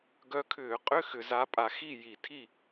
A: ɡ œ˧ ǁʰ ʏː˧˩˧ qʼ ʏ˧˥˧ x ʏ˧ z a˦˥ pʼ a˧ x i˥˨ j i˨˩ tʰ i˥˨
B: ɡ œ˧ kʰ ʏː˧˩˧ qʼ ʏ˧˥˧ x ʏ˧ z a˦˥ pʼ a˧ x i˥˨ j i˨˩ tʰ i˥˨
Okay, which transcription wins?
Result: B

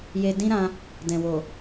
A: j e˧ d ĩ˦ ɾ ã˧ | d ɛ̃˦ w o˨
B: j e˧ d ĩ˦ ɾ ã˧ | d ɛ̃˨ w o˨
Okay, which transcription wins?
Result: B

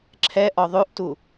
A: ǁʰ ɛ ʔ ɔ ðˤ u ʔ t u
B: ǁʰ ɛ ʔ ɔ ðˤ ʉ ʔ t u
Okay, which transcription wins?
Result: B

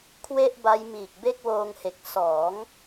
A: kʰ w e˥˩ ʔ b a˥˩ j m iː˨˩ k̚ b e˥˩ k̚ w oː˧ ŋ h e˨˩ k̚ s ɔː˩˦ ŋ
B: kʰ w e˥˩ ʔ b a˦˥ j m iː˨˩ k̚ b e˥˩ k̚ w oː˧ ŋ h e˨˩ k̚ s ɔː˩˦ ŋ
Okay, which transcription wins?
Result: B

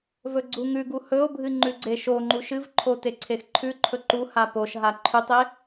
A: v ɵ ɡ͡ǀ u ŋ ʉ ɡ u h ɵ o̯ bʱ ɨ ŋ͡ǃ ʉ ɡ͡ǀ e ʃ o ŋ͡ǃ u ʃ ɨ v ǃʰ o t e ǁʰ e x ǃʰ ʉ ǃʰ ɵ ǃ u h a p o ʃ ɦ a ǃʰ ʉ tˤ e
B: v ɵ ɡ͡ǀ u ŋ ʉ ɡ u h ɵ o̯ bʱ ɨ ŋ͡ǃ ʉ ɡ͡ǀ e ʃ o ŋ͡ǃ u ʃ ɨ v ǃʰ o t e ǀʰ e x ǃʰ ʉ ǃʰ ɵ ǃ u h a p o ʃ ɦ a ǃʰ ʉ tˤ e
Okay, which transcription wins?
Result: B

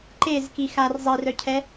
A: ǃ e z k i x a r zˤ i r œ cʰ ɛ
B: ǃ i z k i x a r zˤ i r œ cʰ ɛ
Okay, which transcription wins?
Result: A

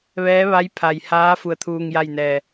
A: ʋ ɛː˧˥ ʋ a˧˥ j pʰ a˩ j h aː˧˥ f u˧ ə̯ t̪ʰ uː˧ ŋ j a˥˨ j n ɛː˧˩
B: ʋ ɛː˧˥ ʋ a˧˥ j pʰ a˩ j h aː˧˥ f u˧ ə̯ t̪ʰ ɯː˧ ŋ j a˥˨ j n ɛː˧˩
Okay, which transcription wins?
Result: A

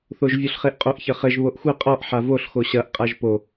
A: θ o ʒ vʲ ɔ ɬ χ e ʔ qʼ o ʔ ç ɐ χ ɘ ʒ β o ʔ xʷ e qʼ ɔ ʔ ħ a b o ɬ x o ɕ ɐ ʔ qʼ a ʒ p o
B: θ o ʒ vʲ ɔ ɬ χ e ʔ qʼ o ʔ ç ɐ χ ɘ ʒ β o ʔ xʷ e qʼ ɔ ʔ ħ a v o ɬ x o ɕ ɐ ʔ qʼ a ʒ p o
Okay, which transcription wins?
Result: B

